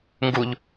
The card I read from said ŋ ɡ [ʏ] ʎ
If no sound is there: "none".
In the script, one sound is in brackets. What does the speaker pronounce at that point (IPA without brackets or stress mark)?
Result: u